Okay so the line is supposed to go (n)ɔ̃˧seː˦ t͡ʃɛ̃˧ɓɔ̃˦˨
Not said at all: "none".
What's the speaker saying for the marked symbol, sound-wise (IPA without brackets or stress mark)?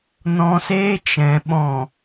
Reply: n